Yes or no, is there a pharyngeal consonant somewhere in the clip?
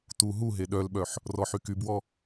yes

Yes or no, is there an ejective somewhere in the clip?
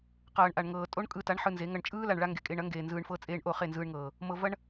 yes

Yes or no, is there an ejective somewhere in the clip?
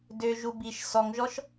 no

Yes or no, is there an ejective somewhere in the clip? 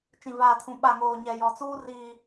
no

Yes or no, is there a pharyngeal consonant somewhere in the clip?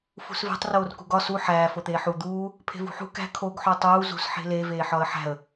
yes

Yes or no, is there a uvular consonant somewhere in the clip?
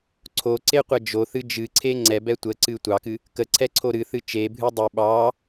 yes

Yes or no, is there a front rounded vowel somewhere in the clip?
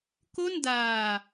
no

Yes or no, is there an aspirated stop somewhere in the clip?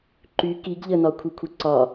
yes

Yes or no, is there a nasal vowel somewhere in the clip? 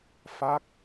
no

